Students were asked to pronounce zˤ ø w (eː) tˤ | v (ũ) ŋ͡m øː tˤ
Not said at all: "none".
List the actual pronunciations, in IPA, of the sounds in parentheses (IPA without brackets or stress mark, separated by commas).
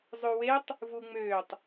e, u